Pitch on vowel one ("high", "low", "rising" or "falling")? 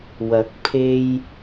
rising